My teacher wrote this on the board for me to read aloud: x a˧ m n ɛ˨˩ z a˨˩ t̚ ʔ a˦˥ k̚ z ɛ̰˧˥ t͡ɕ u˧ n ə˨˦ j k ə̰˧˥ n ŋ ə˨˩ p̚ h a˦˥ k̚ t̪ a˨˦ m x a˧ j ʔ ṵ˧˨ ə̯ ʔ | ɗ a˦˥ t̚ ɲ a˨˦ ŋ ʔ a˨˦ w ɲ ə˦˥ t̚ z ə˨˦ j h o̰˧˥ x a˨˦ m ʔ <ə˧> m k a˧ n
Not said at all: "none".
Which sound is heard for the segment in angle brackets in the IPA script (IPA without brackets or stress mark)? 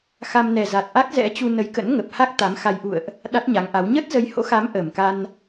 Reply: ə˨˩